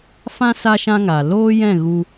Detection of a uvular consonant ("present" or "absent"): absent